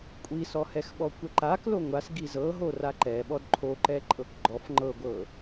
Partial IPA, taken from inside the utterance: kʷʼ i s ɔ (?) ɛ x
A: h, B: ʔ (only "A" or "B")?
A